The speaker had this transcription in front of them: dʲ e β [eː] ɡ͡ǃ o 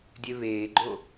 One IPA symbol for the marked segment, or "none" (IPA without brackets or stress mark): eː